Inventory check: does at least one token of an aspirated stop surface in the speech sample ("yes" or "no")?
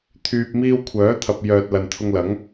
yes